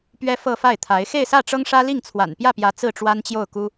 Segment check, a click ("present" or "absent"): absent